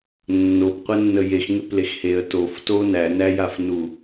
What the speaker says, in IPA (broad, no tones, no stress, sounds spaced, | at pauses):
nː o p qʷ e nː ə j e x ŋ e p l e x h e ə̯ t o f t o n æ n æ j a f n u